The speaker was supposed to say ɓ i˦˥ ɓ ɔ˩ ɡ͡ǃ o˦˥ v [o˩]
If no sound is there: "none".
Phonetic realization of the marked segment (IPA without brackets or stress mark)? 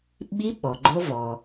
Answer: ɔ˩